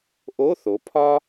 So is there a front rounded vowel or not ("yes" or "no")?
no